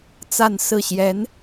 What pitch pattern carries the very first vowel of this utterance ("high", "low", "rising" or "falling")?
falling